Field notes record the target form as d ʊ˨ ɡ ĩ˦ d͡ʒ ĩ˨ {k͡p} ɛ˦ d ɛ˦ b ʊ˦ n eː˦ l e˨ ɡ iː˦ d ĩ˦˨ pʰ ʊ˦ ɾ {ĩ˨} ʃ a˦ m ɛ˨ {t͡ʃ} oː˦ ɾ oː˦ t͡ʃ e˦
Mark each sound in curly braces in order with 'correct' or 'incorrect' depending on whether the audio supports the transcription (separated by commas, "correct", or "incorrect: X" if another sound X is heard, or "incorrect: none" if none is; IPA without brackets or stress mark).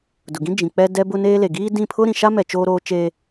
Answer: correct, correct, correct